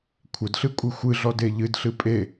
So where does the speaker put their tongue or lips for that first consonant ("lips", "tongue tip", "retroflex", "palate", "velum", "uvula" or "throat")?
velum